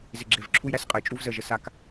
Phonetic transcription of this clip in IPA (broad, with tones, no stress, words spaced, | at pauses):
zɪ˨ɡ͡ǁe˨v ǁʰu˦jɾæ˦s qʼə˨jt͡ʃʼu˦vzə˦˨ʒə˨ sa˦k